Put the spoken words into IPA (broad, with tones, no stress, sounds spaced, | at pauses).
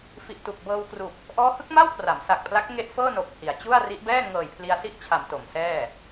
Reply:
f i˨˩ ʔ t u˨˩ k̚ b ɤː˧ w k r u˨˩ k̚ | ʔ ɔː˦˥ h ɯ˦˥ k̚ m a˥˩ w kʰ r a˩˦ m s a˨˩ k̚ pʰ l a˦˥ k̚ ŋ e˦˥ ʔ f ɤː˥˩ n o˨˩ k̚ h i˩˦ a̯ t͡ɕ u˥˩ a̯ r i˦˥ ʔ b ɛː˥˩ ŋ ɤː˨˩ j pʰ l i˧ a̯ s i˥˩ ʔ t͡ɕʰ a˩˦ m t o˩˦ m s ɛː˥˩